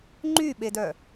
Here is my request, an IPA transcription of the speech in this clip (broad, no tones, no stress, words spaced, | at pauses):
ŋ͡ǃyɓedœ